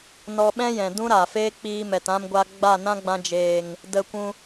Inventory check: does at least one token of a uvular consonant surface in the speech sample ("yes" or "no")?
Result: no